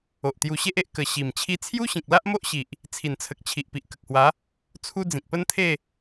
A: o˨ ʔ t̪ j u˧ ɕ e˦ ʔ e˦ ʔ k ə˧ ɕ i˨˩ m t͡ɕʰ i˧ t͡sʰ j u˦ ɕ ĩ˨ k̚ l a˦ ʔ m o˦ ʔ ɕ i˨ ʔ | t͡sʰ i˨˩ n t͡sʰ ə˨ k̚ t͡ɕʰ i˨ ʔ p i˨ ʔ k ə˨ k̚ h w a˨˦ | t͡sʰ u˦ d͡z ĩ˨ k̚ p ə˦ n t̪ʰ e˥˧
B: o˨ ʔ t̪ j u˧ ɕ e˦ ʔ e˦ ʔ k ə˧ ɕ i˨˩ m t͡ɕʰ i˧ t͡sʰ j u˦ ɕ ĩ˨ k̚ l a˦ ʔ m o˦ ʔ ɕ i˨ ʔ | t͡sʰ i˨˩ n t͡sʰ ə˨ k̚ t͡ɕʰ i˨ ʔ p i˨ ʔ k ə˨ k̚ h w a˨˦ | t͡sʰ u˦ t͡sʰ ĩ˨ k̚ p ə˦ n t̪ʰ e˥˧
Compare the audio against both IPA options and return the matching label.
A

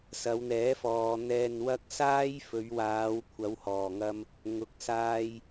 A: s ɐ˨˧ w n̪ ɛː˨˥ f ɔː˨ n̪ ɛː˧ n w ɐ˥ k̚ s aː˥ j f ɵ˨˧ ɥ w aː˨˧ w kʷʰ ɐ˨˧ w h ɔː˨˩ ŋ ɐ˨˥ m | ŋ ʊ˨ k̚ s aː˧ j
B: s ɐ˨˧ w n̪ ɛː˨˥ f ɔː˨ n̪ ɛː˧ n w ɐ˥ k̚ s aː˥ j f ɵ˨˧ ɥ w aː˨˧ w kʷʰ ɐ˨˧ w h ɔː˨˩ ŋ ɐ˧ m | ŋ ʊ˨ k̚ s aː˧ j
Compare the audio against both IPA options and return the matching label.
B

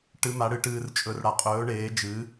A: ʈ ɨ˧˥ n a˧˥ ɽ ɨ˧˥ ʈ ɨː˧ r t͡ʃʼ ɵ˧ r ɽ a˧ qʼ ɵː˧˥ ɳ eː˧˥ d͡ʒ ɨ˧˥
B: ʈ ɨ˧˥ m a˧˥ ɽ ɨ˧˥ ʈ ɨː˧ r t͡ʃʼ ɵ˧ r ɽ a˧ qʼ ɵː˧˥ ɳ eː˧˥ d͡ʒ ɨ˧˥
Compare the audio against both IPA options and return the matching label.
B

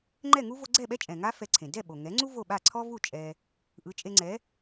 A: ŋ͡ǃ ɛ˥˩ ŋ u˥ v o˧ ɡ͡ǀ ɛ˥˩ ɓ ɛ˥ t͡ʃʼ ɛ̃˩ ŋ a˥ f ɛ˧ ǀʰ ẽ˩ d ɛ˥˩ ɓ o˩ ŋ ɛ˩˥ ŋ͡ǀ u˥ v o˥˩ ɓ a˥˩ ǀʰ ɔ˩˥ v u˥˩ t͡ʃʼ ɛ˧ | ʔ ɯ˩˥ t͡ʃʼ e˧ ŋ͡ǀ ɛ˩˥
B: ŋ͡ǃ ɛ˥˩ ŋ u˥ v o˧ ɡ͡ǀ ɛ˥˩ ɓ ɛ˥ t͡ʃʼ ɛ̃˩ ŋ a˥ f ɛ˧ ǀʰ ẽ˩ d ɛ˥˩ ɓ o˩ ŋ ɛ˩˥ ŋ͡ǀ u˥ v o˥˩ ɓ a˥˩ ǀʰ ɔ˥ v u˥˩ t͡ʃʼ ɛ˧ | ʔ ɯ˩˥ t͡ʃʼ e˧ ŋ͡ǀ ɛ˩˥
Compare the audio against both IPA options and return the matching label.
B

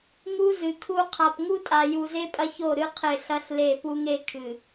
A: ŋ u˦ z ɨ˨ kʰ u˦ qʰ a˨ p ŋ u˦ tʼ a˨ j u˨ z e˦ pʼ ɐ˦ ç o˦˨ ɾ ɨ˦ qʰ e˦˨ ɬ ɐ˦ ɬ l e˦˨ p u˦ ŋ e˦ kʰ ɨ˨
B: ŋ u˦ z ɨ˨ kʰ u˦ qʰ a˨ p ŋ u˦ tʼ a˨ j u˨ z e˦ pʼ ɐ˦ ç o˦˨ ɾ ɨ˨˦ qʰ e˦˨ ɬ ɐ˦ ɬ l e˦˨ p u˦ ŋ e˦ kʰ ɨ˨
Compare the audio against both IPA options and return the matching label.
A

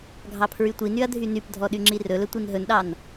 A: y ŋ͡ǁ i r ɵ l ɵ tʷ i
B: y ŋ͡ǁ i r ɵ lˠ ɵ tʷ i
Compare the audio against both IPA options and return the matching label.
A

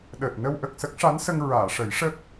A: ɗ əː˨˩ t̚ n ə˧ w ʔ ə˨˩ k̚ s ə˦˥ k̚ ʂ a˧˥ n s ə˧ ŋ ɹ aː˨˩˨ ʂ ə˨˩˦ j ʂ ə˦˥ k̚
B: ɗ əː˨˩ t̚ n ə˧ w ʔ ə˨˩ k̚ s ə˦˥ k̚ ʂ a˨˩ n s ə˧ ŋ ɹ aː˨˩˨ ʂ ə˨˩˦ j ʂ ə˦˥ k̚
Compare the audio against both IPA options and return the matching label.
A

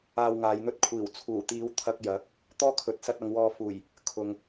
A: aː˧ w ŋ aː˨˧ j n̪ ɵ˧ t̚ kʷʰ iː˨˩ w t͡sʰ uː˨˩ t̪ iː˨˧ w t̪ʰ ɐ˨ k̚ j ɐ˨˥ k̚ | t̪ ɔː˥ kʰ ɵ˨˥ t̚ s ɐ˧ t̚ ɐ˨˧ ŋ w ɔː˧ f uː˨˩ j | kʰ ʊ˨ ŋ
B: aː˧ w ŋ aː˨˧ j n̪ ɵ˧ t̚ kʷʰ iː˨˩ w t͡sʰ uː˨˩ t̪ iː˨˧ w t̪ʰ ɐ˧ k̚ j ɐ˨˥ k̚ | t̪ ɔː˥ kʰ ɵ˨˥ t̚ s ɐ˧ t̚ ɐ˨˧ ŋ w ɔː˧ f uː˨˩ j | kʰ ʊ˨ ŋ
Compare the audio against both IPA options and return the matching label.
B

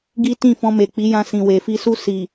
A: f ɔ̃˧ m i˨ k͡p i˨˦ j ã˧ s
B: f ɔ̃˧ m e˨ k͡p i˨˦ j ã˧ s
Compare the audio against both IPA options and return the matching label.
B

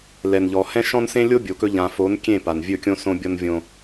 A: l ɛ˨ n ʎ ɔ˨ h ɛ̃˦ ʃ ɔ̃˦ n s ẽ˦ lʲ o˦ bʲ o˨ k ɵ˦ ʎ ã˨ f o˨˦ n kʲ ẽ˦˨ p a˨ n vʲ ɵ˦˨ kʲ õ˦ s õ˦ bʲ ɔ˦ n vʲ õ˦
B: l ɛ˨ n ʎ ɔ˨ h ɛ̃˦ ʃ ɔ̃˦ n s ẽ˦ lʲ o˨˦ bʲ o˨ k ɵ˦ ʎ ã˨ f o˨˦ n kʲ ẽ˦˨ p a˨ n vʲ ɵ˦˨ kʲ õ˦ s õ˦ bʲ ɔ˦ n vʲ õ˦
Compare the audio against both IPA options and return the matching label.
A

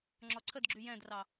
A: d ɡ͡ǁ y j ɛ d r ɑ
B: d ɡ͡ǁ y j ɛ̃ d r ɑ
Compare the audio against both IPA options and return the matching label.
B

